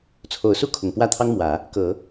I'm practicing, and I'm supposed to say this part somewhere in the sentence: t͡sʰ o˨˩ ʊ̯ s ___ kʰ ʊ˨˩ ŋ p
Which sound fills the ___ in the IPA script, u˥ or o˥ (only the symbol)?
u˥